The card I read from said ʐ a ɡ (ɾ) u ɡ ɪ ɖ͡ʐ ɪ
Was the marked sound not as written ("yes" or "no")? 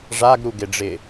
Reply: no